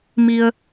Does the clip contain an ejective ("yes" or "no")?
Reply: no